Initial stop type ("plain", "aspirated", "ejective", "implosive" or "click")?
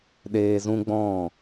implosive